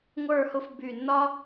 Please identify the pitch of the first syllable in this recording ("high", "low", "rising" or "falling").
falling